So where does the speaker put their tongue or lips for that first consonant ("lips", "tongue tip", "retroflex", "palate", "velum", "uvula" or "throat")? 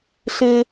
tongue tip